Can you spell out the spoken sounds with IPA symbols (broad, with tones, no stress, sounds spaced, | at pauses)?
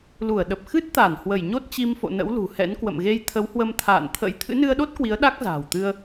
l u˧˩ ə̯ ɗ ə˨˩ p̚ x ɨ˦˥ t̚ t̪ a˧˩ n h w ə˧˩ j ɲ o˦˥ t̚ t͡ɕ i˧ m f o̰˧˨ n ə̰˧˥ w l ṳ˨˩ h ɛ̰˧˥ n k w ə̰˧˨ m ɣ e˧ j t̪ʰ ə˨˦ w h w ə˧ m t̪ʰ a̰ː˧˨ n t̪ʰ ə̰˧˥ j t̪ʰ ɨ̰˧˥ n ɨ˧ ə̯ ɗ o˦˥ t̚ k w i˨˦ ə̯ ɗ a˦˥ k̚ z a̤ː˨˩ w t̪ ɨ˧ ə̯